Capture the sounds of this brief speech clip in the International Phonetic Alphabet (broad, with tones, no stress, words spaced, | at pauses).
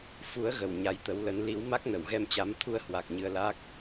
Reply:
fu˨˦ə̯ɣə˧˩w ɲa˨˦jt̪ə˨˦wlə˨˦n li˨˦w ma˦˥k̚nə˧˩wɣɛ˧mt͡ɕa˨˦m t̪ʰu˧ə̯hwa˨˩k̚ ɲɨ˧ə̯la˦˥k̚